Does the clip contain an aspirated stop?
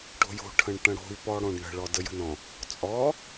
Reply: yes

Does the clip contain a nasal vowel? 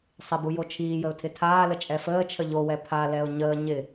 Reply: no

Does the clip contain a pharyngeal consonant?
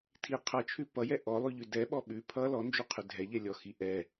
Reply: no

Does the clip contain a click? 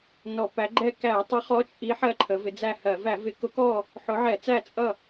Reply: yes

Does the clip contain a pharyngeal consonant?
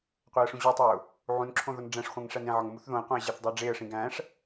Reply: yes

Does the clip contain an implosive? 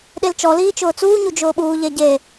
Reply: yes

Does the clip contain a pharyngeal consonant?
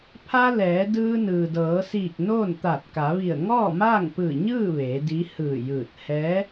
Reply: no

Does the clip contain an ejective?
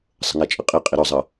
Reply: yes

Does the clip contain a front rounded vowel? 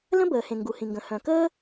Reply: yes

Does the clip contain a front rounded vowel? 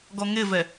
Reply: no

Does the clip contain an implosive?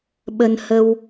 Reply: yes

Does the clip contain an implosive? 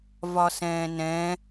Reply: no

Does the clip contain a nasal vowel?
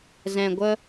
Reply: yes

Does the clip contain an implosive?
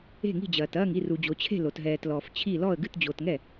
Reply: no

